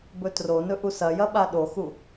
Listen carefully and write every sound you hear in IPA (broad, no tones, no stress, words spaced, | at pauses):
bɵtronɵ ʔusɐjɐ ɓaɗoxu